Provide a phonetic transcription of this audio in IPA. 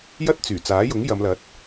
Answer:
j ɐ˥ t̚ t͡s yː˨˩ t͡s aː˨˥ j ʊ˨˥ ŋ j ɐ˨˧ m l ɐ˨˥ t̚

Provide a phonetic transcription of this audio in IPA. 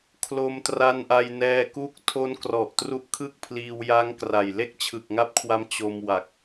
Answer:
kʰ l o˧ m t r a˧ n ʔ a˧ j n ɛː˧ k u˦˥ k̚ tʰ o˦˥ n k r ɔ˨˩ ʔ t r u˦˥ ʔ kʰ ɯ˥˩ k̚ pʰ l iː˧ w j a˦˥ ŋ k r a˨˩ j l e˥˩ k̚ t͡ɕʰ ɯ˨˩ k̚ ŋ a˦˥ p̚ kʰ w a˧ m t͡ɕ o˧ m w a˨˩ k̚

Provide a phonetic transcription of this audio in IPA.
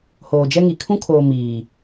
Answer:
h oː˨ d͡ʒ ɛ˦ ŋ i˨ kʰ ũ˦ kʰ oː˨ m iː˨

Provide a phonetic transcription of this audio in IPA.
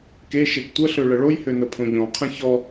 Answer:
k e ʃ e ɡ tʷ ə ɬ ø ɭ ə ɭ o j h ø n ə pʰ õ ʎ ɔ̃ qʰ ə̃ ç ɔ

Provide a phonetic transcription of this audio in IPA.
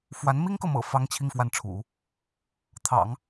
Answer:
f w a˧˥ n m i˥ ŋ k ɤ˨ m ɤ̰˨˩ f ɑ˥ ŋ t͡ɕʰ i˥˧ ŋ f w a˥˩ n ʈ͡ʂʰ ṵ˨˩˦ | t̪ʰ ɑ̰˨˩˦ ŋ

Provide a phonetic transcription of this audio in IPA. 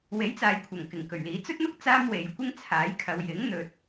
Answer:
w e˨˥ j t͡s aː˨ j kʷʰ ɐ˨˩ ŋ k ɪ˨˩ ŋ k ɵ˨˩ ɥ l iː˨˥ t͡s ɵ˥ t̚ n̪ ʊ˥ k̚ t͡s aː˥ m w e˨˧ j kʷ ɪ˥ ŋ t͡sʰ aː˨˥ j kʰ ɐ˨˧ w j ɪ˨˥ ŋ n̪ ɵ˧ t̚

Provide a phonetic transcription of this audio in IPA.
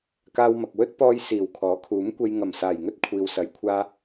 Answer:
k aː˧ w m ɐ˨ k̚ w ɵ˥ t̚ p ɔː˥ j s iː˨˩ w kʰ ɔː˨˥ kʰ uː˨˥ m kʷ e˧ j ŋ ɐ˨˩ m s aː˨˩ j ŋ ɵ˥ t̚ kʷʰ iː˨ w s ɐ˨˥ j kʷʰ aː˧

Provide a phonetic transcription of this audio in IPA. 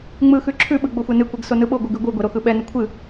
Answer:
ŋ͡m ɯ x ʉ ǁʰ ʉ ɓ ɯ ɡ͡b o xʷ ɛ n ɨ kʷ ɛ ɡ s o n ɯ ɓ o ɡʷ ɯ ɡ ʉ ɡʷ ɯ ɡʷ ɛ ɾ o x ɯ ɓ ɛ n ɯ kʷʰ ɨ

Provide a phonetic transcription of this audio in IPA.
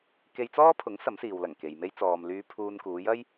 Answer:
k e˧ j t͡s ɔː˥ pʰ ʊ˨˥ ŋ s ɐ˨˥ m s iː˨ w l ɐ˨˩ ŋ k e˨ j m e˥ j t͡s ɔː˨ m l yː˧ pʰ uː˧ n k uː˨˧ j ɐ˥ j

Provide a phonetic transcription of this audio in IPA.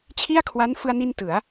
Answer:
t͡ɕʰ i˥˩ a̯ kʰ w a˦˥ n f ɯ˧ a̯ n i˧ n t ɯ˩˦ a̯

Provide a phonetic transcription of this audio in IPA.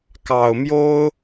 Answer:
k ɑ˨˩ ʊ̯ m j o˥ ʊ̯

